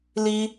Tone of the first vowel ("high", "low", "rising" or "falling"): high